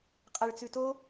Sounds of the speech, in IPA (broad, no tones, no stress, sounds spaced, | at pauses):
qʼ a ɭ t͡s ʉ t o